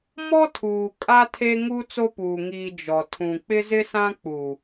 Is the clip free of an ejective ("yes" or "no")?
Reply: no